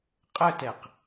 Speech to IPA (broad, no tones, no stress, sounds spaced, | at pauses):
qʼ ə t ɛ q